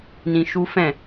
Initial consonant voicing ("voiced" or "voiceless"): voiced